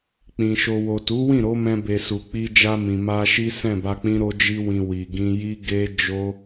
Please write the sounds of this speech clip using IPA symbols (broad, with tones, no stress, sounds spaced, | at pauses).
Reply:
k͡p ĩ˨ ʃ o˧ w o˨ t u˨˦ w ĩ˦˨ ɾ o˨˦ m ɛ̃˧ b e˨ s u˨ k͡p i˧ d͡ʒ a˧ m ĩ˨ m a˧ ʃ i˦ s ɛ̃˦˨ b a˧ k͡p ĩ˦ ɾ o˧ d͡ʒ i˧ w ĩ˨ w i˨ ɡ ĩ˧ j i˦ ɡ e˦ d͡ʒ o˦